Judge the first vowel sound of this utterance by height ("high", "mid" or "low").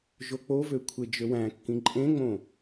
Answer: mid